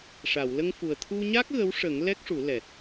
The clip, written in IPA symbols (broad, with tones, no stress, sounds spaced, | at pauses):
ʂ a˨˩˨ w l ə˧ ŋ f u˨˩ ə̯ t̪ʰ u˧ ɲ a˦˥ k̚ ɣ ə˧˥ w ʂ ə˨˩˦ ŋ l ɛ˦˥ k̚ ʂ u˨˩˦ l ɛ˨˩ t̚